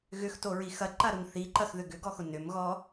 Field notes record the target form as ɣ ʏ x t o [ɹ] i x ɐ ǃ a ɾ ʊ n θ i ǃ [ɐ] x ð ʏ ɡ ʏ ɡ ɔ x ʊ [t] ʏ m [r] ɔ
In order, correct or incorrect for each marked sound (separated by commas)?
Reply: correct, correct, incorrect, incorrect